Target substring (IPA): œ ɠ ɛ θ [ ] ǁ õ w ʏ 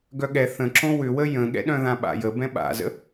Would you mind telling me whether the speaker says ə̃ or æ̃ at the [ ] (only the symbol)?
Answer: ə̃